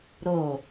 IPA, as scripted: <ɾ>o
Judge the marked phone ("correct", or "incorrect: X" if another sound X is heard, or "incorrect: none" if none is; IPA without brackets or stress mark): correct